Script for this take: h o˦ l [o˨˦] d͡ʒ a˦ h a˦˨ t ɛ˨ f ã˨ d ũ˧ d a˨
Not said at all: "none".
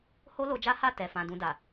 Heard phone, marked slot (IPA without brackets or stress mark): o˧